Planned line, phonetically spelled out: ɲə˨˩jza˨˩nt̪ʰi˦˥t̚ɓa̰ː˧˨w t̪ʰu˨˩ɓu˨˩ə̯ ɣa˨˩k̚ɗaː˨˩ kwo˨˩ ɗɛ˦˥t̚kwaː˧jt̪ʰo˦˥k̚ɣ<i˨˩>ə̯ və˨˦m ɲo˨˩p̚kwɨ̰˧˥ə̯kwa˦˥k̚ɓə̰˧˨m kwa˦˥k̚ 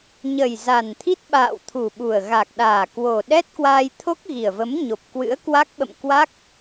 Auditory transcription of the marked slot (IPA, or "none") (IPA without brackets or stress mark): i˨˩